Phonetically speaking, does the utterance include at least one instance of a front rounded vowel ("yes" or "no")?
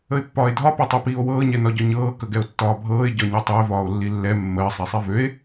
yes